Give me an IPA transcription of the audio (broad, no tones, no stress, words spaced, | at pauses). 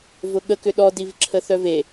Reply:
vʊɠəkʏ ɗɔdivǁʰə θœve